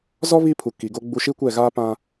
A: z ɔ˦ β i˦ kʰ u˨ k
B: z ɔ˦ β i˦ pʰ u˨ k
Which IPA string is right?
B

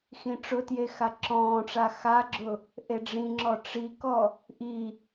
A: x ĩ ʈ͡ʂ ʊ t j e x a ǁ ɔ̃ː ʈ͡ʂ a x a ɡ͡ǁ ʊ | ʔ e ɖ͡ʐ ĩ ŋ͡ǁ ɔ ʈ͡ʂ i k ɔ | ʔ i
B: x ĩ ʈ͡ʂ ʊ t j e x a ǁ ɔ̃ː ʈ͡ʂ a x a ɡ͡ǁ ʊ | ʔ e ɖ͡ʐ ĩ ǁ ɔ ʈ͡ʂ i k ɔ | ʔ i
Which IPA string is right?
A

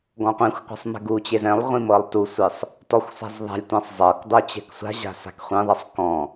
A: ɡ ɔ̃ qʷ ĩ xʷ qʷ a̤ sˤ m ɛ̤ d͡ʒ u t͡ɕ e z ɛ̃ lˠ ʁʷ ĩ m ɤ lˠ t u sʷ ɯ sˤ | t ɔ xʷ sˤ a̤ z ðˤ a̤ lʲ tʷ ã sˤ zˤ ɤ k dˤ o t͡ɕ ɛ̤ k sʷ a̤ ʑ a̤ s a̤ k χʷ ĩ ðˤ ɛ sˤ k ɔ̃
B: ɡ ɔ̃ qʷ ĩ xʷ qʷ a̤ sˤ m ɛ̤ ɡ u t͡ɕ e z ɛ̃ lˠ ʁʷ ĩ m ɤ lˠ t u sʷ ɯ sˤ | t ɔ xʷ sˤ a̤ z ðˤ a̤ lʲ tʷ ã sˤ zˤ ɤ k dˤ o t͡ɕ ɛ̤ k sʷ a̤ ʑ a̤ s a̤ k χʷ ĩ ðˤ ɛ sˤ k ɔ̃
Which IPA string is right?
B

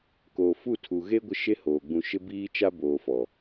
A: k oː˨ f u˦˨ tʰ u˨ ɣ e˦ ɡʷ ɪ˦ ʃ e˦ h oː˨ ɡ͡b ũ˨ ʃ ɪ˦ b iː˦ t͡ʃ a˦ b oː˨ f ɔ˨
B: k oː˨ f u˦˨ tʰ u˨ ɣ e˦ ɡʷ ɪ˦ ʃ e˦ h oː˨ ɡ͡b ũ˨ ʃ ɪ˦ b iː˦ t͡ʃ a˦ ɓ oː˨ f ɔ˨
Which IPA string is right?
A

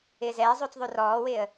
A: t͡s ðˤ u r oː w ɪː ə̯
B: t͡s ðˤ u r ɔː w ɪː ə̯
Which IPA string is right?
B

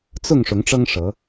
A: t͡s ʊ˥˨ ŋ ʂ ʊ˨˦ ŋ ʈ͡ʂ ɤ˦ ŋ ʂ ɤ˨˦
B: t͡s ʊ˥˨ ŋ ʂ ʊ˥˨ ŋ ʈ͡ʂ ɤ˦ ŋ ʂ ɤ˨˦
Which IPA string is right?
A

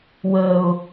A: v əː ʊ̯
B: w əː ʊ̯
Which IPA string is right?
B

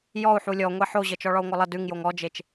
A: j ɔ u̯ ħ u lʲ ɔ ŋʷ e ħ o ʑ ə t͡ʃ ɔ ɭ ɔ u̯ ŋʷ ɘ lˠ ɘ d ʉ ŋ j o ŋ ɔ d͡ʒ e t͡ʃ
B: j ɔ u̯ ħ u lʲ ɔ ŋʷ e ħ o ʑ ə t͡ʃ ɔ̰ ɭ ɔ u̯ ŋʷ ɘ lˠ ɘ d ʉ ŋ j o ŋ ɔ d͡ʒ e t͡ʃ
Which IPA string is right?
A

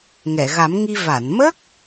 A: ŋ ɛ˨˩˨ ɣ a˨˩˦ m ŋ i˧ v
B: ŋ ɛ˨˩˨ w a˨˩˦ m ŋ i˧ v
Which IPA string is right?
A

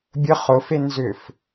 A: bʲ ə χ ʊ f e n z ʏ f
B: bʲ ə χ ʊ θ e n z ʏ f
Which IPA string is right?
A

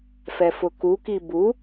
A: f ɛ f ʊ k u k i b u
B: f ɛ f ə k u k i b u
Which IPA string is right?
A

